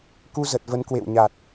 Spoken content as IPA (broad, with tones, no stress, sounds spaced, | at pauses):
k u˧ z ə˨˩ t̚ v ə˨˦ n k w ḛ˧˨ w ɲ a˨˩ t̚